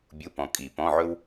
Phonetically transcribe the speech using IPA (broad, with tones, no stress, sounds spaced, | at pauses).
bʲ u˧˥˧ p ɔ̃˨ kʼ i˨˩˦ p ɔ̃˧˥˧ ʕ ɵ˥ w